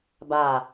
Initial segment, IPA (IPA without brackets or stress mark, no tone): b